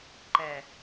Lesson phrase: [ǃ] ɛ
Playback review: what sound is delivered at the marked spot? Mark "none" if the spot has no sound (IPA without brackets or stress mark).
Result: ǃ